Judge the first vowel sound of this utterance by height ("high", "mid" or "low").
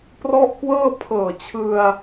mid